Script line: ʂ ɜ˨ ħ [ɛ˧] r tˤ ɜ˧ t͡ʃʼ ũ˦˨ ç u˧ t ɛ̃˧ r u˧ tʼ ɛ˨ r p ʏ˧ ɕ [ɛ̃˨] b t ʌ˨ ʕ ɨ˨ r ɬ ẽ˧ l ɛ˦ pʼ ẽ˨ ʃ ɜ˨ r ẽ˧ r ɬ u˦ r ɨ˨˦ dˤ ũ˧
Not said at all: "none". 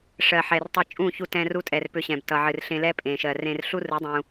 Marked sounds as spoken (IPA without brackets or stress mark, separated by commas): ɛ˨, ɛ̃˨